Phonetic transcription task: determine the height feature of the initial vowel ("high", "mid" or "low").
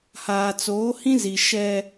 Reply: low